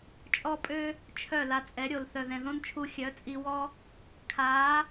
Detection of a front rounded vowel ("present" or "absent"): present